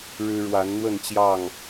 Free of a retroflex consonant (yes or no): no